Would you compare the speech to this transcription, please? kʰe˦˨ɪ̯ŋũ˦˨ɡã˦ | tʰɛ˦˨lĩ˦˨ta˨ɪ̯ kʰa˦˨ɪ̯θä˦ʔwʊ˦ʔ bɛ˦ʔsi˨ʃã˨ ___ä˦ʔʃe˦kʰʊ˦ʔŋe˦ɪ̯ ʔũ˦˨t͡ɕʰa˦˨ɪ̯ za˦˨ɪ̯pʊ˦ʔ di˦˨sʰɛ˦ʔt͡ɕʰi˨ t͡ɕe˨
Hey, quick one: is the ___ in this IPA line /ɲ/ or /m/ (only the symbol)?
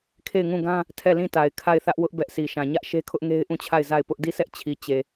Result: ɲ